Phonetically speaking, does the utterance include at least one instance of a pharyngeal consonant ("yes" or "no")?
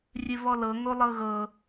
no